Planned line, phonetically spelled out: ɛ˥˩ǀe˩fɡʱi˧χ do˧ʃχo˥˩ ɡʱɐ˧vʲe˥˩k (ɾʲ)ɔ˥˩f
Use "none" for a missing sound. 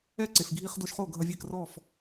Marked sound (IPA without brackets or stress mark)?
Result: r